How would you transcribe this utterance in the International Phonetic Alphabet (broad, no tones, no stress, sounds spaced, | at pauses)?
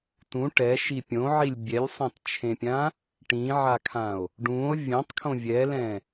t ũ ʈ ɛ ʃ i pʲ õ ʕ i lʲ bʲ ɛ lʲ sˤ ã t t͡ʃʰ ẽ pʲ ã | ʈ ĩ ʕ a kʰ ã o̯ | ɖ ũ o̯ vʲ ẽ tˤ kʰ õ vʲ ɛ l ɛ̃